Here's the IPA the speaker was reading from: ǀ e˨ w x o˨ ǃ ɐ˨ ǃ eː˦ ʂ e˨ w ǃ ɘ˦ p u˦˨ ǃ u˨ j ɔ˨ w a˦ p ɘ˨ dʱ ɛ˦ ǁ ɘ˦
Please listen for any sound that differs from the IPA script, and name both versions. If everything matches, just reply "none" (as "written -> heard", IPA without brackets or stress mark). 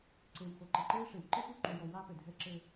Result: none